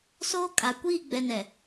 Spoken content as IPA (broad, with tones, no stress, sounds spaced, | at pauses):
s oː˦ kʼ a˨ kʷ iː˦˨ ɡ͡b ɛ˨ n ɛ˨